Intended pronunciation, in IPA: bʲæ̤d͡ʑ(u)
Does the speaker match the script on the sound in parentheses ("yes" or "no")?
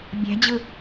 no